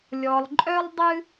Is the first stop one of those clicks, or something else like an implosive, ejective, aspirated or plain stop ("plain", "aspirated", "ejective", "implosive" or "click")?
click